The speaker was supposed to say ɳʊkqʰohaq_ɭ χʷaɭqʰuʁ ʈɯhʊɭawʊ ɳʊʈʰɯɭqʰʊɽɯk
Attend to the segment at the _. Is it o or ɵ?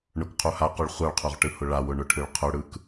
ɵ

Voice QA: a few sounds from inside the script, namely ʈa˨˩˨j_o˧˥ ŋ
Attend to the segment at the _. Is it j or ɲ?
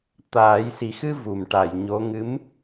ɲ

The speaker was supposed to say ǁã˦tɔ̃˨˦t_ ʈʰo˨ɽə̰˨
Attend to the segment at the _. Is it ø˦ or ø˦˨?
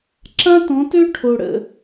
ø˦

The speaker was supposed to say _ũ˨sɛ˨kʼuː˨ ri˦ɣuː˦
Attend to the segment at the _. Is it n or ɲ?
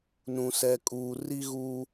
n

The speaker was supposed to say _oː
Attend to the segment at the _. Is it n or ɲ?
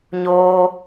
ɲ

